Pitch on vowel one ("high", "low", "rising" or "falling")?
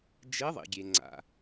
rising